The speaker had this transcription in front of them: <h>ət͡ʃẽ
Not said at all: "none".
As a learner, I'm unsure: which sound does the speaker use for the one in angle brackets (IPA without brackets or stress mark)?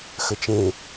x